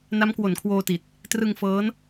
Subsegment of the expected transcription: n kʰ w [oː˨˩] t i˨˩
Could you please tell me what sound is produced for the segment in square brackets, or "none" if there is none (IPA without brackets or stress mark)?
oː˧